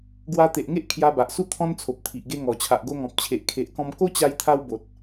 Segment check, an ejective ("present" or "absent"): absent